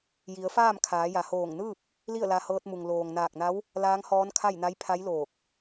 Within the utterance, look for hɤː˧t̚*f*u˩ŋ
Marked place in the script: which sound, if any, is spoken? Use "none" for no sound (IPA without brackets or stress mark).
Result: m